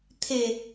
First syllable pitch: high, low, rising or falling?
low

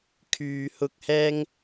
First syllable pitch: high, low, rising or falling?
low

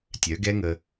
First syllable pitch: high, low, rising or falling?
rising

